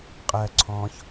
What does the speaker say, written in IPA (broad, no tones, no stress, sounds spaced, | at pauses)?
qʼ ɜ ǀʰ ɔ̃ ç